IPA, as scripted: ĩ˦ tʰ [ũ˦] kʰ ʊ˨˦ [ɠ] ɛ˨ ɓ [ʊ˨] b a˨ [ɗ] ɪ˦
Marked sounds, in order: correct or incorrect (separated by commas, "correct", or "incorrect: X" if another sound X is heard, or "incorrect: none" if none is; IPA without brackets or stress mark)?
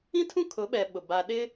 correct, incorrect: ɓ, correct, correct